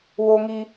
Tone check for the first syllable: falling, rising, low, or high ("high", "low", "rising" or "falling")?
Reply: high